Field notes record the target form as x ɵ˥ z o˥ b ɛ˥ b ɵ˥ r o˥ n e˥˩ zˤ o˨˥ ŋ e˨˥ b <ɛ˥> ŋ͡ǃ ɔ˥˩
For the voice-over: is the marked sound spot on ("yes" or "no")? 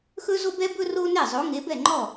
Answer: no